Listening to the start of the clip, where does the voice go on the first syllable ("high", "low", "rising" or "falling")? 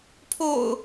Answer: low